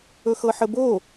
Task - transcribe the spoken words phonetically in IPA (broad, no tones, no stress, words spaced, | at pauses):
ɵxɤħəbo